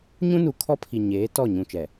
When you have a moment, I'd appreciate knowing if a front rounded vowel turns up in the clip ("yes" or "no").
no